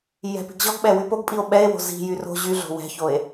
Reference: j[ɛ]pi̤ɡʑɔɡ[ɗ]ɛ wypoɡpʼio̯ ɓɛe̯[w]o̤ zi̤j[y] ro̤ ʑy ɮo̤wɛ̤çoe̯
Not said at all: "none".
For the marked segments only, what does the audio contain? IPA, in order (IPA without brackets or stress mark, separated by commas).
ɛ̤, ɓ, w, y